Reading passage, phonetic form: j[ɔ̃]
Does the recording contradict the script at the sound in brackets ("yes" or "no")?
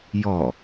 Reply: yes